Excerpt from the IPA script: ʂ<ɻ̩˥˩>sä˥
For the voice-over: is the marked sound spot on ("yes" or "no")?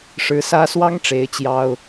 no